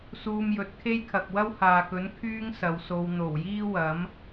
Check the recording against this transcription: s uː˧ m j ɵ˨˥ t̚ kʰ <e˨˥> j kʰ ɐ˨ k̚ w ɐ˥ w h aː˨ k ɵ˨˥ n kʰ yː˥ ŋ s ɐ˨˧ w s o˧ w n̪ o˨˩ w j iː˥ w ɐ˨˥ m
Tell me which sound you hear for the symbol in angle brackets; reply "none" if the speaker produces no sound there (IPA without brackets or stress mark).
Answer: e˥